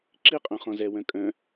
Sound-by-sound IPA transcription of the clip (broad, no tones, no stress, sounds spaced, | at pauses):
ǁ i qʼ œ̃ χ ɔ̃ z ɛ w œ̃ kʼ œ̃